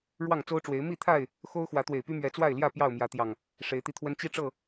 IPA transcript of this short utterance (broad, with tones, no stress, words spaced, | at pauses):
ɻwɑ˥˨ŋt͡so˦ʊ̯ʈ͡ʂwe˨˦ɪ̯ mi˥˨t̪ʰa˥˨ɪ̯ | xo˦ʊ̯ xwä˨˦t̪we˨˩ɪ̯py˦ mɥɛ˨˦t͡swa˥˨ɪ̯ljä˥˨ pjɑ˥˨ʊ̯mjä˨˦t̪jɑ˨˩ŋ | ʂe˨˦ɪ̯t̪i˧t̪ʰwə˦n t͡ɕi˦ʈ͡ʂɤ˥˨